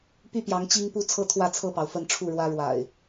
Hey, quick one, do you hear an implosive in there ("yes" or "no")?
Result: no